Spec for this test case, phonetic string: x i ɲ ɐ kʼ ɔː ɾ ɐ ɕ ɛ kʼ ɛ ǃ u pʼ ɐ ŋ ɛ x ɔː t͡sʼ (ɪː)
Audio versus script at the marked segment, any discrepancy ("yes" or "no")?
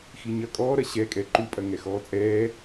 yes